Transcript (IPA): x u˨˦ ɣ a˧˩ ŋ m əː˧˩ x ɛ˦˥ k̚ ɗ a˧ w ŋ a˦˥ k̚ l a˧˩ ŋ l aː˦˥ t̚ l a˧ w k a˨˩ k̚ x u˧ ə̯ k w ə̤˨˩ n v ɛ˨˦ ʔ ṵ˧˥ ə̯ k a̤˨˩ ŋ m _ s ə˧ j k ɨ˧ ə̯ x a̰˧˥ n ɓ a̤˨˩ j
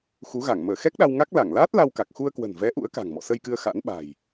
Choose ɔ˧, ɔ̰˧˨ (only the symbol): ɔ̰˧˨